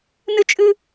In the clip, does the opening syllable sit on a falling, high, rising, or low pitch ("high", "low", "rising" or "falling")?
high